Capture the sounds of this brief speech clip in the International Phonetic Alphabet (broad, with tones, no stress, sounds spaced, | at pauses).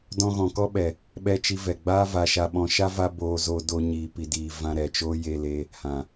d ɔ̃˧ ɣ ɔ̃˨ k ɔ˦ ɓ ɛ˨ | ɓ ɛ˧ t͡ʃ i˧ v ɛ˨ ɡ͡b aː˦ v a˨ ʃ a˨ ɓ ɔ̃˨ ʃ a˦ v a˦ b oː˧ z o˧ d o˧ ɲ iː˨ p i˨ d iː˨ v ã˧ ɾ ɛ˨ t͡ʃ oː˦ j e˧ l e˧ | h ã˨